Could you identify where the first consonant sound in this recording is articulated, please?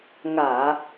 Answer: velar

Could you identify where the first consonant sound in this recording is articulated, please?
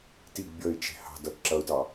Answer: alveolar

